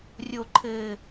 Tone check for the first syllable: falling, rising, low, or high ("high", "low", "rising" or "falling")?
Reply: low